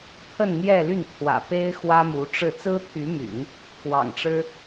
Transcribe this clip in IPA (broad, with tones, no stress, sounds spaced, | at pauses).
t̪ʰ ə˥˧ n n̪ j ɛ˥˧ l y˥˩ n t̪ʰ w ä̰˨˩ p e˥ ɪ̯ x w ä˥ m u˧˥ ʈ͡ʂ ɻ̩˥˩ t͡s ɹ̩˥ t̪ʰ y˧˥ m y̰˨˩˦ n | k w ɑ̰˨˩ ŋ ʈ͡ʂ ɻ̩˥